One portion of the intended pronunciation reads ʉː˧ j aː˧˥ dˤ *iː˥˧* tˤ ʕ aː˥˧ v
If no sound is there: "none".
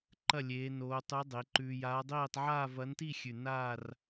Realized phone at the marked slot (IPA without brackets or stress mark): iː˥˧